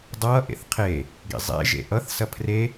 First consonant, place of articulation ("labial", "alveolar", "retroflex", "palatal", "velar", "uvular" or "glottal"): alveolar